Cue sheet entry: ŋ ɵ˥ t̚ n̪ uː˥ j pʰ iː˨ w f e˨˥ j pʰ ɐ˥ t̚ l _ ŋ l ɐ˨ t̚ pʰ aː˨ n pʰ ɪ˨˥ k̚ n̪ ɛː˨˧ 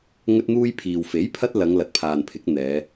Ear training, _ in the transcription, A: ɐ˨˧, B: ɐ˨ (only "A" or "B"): A